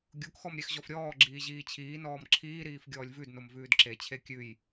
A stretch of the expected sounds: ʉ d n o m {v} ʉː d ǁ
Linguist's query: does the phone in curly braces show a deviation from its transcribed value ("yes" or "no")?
no